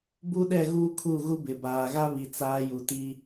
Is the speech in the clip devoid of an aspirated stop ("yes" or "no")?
no